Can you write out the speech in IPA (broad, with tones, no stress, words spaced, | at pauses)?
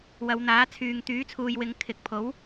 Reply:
wɐ˨˧wn̪aː˨˥ t͡sʰyː˨ŋt̪yː˨˥t͡sʰuː˨jwɪ˨˧ŋ kʰɪ˨k̚pʰo˨˥w